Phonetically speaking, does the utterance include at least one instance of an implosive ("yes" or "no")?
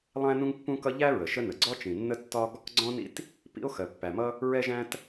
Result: no